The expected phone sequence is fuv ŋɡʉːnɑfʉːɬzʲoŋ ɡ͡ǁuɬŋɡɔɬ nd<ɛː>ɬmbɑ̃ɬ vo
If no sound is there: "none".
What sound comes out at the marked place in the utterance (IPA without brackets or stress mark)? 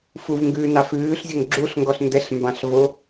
ɛ